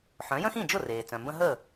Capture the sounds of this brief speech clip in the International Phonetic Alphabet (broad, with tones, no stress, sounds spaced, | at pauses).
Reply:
ħ œ̃˩˥ j ə̃˥ x ĩ˥˩ d͡ʒ ʊ˥˩ r eː˩ t͡s œ̃˩ m b ə̃˥ ɦ ə˥˩